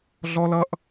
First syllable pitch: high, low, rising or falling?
high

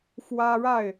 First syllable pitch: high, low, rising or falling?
high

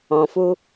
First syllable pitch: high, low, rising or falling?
low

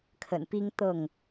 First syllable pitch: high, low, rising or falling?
low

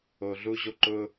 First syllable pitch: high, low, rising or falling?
low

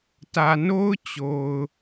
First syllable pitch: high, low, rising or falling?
low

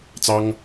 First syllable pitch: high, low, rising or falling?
high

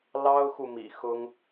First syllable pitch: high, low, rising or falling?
high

